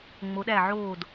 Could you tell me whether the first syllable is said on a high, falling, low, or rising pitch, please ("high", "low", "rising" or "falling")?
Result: rising